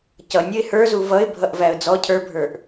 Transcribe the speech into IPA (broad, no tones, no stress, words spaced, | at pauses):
cʌnʲʌɪ̯ hə˞zu vʌɪ̯bʱʌʔvæə̯ d͡zɔ cʰə˞bʱə˞ʔ